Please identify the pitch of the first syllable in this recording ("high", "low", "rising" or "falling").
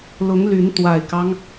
rising